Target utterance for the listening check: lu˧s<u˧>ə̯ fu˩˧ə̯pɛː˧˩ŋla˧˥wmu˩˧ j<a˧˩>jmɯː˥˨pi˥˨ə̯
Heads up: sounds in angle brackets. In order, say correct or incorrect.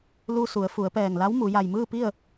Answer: incorrect, correct

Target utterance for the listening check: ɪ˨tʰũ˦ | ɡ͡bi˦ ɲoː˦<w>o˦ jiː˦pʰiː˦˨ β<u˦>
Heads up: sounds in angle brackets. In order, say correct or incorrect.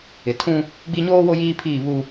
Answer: correct, correct

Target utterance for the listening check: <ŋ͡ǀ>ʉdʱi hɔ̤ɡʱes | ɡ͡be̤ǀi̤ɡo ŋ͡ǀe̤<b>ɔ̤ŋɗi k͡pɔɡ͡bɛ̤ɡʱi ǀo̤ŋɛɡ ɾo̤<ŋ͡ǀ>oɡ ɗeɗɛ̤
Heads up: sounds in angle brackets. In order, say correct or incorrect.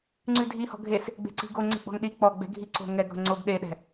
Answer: correct, incorrect, correct

